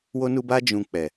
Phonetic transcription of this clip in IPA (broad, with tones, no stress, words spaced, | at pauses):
wo˧nu˧ba˧ d͡ʒũ˨ k͡pɛ˨